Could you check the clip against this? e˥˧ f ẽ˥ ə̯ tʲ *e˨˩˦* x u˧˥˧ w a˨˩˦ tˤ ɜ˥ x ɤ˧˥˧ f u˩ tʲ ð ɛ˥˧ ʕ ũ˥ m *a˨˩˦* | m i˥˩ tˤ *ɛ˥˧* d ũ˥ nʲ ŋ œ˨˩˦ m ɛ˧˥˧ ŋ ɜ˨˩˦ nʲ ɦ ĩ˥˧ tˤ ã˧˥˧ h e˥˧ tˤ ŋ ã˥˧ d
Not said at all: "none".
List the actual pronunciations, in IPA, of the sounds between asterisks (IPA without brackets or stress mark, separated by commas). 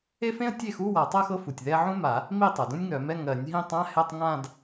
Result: e˥˩, a˨˩˦, ɛ˩